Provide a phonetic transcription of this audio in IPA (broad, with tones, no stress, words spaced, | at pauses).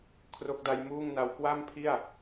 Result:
kʰro˦˥k̚da˦˥jmuː˥˩ŋna˦˥w kwa˥˩mpʰi˥˩a̯